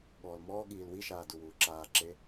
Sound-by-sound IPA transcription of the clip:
ɠ ɔː l m ɔː ɠ iː l w i ʃ aː d u w uː ǁ aː ǁ e

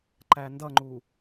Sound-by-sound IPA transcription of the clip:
ǃ æ n d ʌ ŋ͡ǃ u

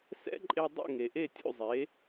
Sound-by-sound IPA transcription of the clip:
s ɛ̰˥ ǃʼ e˧ dˤ ṵ˥˩ ŋ e˩ ʔ e˥˩ tʲ ṵ˥˩ zˤ e˩˥

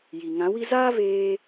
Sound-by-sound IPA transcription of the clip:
j i˨ ŋ ã˨˦ w i˦ z aː˦ v eː˧

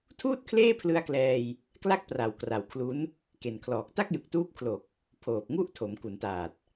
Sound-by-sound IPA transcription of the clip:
tʰ uː˥˩ t̚ kʰ l eː˥˩ pʰ l ɯ˧ a̯ k l ɛː˧ j | k l a˥˩ k̚ p r a˨˩ w k r a˨˩ w kʰ l u˦˥ n | k e˨˩ n kʰ l ɔː˨˩ k̚ t a˥˩ k̚ j ɯ˨˩ k̚ t uː˦˥ p̚ kʰ l o˨˩ k̚ | pʰ oː˨˩ p̚ ŋ u˥˩ ʔ tʰ o˩˦ m k u˩˦ n t aː˨˩ t̚

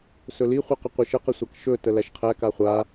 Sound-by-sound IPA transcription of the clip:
s ɵ l i χʷ e q ɪ qʷ e ʃ ə q ɪ sʷ a k ʃ ɵ t ə l æ ʃ qʰ æ k a χʷ a

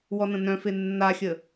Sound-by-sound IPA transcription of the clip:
w ɔ n ə̃ n œ̃ f e nː a xʲ ə

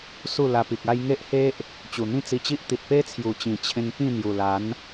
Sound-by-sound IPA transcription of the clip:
s u˥˧ l a˧ p i˨ k̚ a˦ j ŋ e˦ ʔ h e˦ ʔ | t͡ɕ u˨˩ n̪ ĩ˥˧ t͡s i˧ t͡ɕ i˦ ʔ t̪ i˨ t̚ p e˦ t͡sʰ j u˨˩ t͡ɕ ĩ˨˩ t͡ɕʰ ẽ˧ ŋ p ĩ˥˧ n̪ j u˨˩ l a˨˦ n

